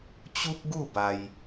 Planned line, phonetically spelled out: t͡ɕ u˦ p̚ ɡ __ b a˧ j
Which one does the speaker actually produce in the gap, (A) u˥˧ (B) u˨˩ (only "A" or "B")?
A